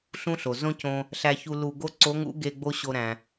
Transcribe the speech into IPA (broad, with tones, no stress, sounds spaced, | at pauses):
ɬ ũ˥ ɬ o˩ z õ˥ c õ˧ | ɬ æ˧ ç u˧ l u˧ ɡ o˥ ǀ o˧˥ ŋ ṵ˧˥ ɡ e˧ ɡ͡b o˥ ɕ o˧ ɾ æ̃˩